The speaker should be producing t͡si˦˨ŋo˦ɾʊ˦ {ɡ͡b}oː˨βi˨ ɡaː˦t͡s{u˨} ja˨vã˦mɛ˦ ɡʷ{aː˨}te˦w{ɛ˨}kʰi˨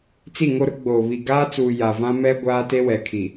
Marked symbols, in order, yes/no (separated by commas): yes, no, no, yes